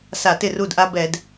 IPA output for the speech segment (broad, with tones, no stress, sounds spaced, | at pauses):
s a˧˩˧ t ɪ˥˩ r u˥˩ d ʔ a˦ b ɛ˧˩˧ d